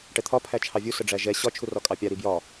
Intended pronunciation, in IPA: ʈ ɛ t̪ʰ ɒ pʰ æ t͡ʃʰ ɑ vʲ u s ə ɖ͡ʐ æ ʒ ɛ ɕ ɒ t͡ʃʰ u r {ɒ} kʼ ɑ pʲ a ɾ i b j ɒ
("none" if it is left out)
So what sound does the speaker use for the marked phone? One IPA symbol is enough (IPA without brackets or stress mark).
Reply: ɒ